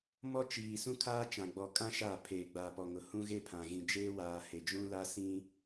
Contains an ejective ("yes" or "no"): yes